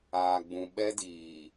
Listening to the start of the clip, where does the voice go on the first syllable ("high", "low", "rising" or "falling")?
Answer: low